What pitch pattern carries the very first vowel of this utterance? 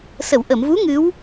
low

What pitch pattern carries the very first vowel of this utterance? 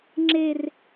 high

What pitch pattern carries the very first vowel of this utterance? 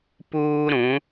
high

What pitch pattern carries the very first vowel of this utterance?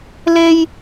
high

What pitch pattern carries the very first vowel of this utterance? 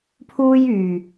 high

